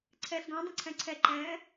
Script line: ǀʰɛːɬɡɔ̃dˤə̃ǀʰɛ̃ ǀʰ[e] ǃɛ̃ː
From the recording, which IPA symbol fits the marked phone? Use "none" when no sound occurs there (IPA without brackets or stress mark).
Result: ɛ